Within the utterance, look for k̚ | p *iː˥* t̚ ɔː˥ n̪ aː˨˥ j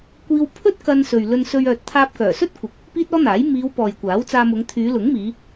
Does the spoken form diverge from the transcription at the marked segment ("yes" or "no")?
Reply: no